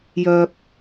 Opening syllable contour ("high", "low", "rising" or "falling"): low